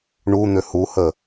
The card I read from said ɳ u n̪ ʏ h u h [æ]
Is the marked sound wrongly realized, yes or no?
yes